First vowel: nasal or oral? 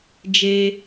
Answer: oral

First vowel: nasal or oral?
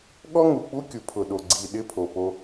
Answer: oral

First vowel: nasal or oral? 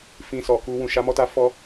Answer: nasal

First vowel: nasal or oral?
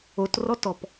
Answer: oral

